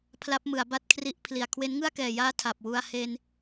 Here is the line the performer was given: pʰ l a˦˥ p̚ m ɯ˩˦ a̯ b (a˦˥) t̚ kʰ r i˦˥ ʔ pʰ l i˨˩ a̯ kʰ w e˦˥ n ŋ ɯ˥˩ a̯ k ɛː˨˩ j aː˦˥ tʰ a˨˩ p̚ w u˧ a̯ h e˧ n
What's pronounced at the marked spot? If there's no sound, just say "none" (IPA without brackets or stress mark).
a˥˩